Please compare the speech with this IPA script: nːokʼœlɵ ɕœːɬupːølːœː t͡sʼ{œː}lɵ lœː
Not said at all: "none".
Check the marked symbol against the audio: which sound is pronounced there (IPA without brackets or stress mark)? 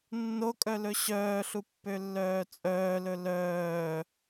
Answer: œː